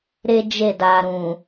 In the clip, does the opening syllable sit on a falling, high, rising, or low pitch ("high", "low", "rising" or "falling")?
high